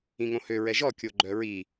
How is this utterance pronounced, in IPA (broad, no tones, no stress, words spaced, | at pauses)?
ĩŋõhø ɹɛʒɔ kʲoɡ͡ǃœɹi